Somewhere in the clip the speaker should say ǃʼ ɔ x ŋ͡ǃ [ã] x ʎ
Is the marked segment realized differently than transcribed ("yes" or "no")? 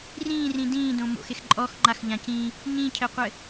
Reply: yes